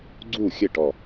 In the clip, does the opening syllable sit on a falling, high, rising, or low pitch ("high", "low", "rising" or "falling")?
falling